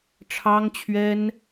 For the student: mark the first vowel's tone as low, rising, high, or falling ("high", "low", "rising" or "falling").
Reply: high